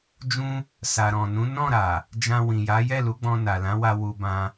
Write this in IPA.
d͡ʒ ũ˦ | s a˨ ɾ ɔ̃˨ n ũ˨˦ n ɔ̃˦˨ ɾ a˨ | d͡ʒ ã˧ w ĩ˨ j a˨˦ j ɛ˦˨ l u˨˦ ɡ͡b ɔ̃˧ n a˨ l ã˨˦ w a˧ w u˧ b ã˧

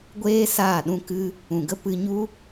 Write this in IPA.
ɡʷ eː˦ s aː˦˨ ɗ ũ˦ k ɨ˦ | ũ˨ ɡ ə˦ p ɨ˦ ɲ u˦

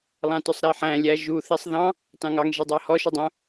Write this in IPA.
lˠ ɑ̃ t œ sˤ ɾ ɛ ħ æ̃ lʲ æ ʒ u θ i sˤ ð ɑ̃ | t ɑ̃ ŋ ɑ ŋ ʒ i dˤ ɑ h ɔ ʃ o dˤ œ̃

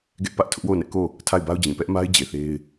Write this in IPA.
ɡ ɛ˦ ʔ p ä˦ ʔ tʰ ʊ˦ ʔ w o˦˨ ʊ̯ n ɛ˦ ʔ k o˦˨ | tʰ a˦˨ ɪ̯ b a˦ ʊ̯ d͡ʑ ĩ˨ p ɛ˦ ʔ m a˦ ɪ̯ d͡ʑ e˨ θ e˦ ɪ̯

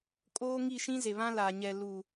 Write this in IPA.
kʼ oː˦ ŋ i˦˨ ʃ ĩ˦ z e˨ β ã˦ l aː˨ ɲ ɛ˨ l u˨

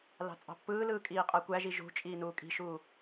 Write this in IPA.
l ɑ̤ t͡sʼ ɑ̤ pː ɯː l ɯː kʼ iː qʼ æ kʷ æ ʒ i ʒ ṳ t͡ʃʼ iː n uː kʼ i̤ ʃ uː

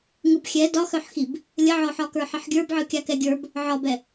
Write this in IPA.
ŋ ɯ b xʲ ɛ d ɒ x œ ħ x i b | lʲ ə ʕ ɔ ħ ɒ k ə˞ ħ ə ħ ɡʲ ə˞ b ʕ ɯ kʲ a k ɛ ɡʲ ə˞ b | ʕ ɒ b ɛ

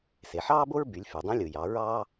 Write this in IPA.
s e˩ ħ ɑː˥ b o˥ ɹ b y˩˧ lʲ f y˩ dˤ ĩ˧˥ lʲ ɯ˩ j ɑ˩˧ ɹ ɑː˥

